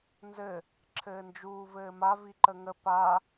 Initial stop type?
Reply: click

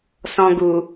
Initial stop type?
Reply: plain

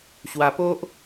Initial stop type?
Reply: plain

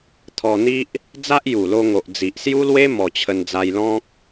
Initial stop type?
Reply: aspirated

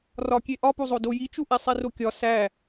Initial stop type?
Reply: plain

